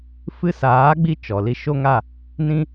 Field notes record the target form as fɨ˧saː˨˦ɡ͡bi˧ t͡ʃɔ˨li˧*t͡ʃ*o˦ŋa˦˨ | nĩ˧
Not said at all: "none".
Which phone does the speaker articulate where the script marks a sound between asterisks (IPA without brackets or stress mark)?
ʃ